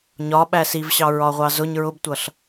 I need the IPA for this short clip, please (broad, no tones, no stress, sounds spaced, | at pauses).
ɲ ɒ ɓ æ s i v ɕ ɑ ɹ ɒ ʁʷ ɑ z ʊ ɲ ɹ ʊ b tʷ ʌ ɬ